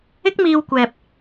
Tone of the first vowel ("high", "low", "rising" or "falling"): high